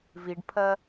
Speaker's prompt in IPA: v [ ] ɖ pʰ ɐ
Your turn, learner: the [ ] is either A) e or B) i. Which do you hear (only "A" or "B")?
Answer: B